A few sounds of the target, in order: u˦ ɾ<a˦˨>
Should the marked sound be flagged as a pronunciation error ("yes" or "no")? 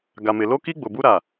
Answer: no